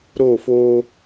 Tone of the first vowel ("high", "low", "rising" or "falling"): falling